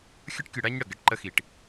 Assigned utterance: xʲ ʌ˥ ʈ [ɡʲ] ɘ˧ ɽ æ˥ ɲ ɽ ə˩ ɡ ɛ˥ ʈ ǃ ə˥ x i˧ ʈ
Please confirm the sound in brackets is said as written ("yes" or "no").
no